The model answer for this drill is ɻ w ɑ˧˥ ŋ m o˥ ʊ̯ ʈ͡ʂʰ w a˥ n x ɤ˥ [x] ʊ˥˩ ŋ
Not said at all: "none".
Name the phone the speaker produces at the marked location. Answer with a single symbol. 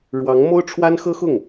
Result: x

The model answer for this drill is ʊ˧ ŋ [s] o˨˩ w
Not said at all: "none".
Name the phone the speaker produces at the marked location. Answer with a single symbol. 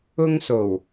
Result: s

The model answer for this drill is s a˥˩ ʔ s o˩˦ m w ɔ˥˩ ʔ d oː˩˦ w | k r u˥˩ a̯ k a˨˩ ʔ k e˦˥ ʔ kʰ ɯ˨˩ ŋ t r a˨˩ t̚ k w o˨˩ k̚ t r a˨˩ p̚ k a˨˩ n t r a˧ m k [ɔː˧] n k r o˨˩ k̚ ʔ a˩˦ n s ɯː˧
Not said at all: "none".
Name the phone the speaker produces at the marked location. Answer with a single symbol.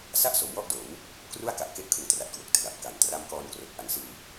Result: ɔː˧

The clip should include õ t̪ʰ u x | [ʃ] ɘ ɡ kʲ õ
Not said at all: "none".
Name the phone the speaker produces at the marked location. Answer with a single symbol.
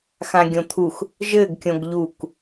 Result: ʒ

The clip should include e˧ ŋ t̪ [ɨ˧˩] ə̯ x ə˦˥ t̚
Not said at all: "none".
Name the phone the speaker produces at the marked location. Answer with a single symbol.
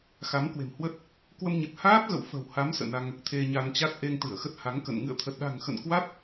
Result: ɨ˧˩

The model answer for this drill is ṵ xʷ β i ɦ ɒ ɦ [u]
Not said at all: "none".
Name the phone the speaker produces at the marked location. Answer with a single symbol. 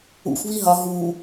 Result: u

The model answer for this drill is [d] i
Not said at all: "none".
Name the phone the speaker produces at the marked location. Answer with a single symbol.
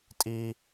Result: tʼ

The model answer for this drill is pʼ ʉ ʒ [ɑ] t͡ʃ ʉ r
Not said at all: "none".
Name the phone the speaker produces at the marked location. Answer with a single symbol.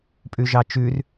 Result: ɑ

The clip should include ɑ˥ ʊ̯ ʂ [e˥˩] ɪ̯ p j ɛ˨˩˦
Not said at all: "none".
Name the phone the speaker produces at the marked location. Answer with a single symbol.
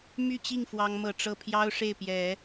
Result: e˥˩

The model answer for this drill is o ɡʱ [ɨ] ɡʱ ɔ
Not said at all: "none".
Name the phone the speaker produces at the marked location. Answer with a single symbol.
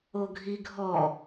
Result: i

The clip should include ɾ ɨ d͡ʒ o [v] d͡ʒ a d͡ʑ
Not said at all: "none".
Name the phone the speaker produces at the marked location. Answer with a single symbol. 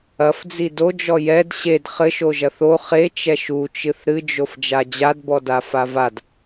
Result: f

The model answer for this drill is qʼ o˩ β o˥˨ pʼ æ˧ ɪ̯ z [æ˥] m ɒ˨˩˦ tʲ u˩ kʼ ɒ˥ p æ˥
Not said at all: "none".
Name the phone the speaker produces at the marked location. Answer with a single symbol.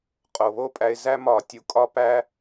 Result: æ˥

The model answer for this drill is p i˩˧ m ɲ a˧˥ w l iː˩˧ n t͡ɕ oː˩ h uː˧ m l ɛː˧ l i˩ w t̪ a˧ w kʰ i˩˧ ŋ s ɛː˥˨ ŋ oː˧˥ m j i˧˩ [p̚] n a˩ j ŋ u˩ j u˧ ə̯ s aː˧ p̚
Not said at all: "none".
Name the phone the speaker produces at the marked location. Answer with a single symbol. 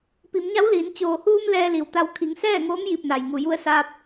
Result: p̚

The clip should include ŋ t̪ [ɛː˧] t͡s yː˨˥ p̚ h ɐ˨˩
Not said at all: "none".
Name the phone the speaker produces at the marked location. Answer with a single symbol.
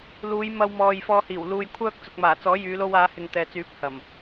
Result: ɛː˨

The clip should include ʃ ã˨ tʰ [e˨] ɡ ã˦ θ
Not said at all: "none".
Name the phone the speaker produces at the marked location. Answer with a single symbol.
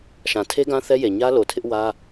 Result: e˦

